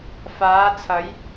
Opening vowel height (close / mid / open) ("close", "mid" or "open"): open